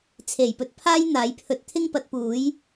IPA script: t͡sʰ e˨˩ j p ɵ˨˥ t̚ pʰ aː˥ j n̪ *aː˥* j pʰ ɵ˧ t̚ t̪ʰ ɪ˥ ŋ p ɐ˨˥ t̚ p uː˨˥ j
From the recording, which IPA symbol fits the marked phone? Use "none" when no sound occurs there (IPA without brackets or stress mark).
aː˨˥